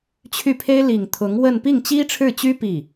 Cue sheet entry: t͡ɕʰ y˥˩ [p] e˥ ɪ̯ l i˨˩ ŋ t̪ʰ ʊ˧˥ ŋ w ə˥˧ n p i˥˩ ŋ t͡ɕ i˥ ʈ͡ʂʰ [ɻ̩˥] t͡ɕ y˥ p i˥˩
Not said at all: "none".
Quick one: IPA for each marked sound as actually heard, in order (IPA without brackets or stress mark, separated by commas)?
pʰ, ɻ̩˥˩